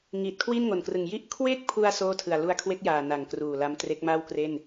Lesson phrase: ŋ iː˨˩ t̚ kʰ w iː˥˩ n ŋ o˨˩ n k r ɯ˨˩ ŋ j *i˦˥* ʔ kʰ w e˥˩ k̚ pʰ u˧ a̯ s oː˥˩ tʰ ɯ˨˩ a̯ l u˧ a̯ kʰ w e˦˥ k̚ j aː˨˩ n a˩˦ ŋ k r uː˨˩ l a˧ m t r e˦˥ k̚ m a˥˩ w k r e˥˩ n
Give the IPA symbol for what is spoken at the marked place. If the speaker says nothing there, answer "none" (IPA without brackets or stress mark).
i˦˥